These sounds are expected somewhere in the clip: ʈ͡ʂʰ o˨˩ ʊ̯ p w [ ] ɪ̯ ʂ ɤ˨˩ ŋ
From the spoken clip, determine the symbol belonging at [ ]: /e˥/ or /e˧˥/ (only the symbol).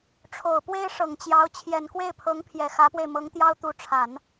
e˥